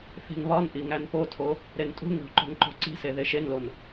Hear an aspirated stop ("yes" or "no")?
yes